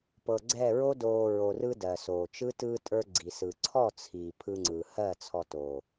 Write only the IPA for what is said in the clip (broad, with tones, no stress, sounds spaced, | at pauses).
p ɤ˨ ɡ͡ǀ ɛ˦˨ ɹ o˦ d oː˨ ɹ o˨ r ɯ˧ d ɜ˨ s oː˨ t͡ʃ ɯ˦ t ɯ˧ tʼ ə˞˧ ɡ͡ǀ i˨ s ɯ˨ ǀʰ ɔ˦˨ t͡sʰ iː˨ pʰ ɯ˧ ŋ͡ǀ ɯː˨ h ɜ˦˨ t͡sʰ ɔ˧ t oː˨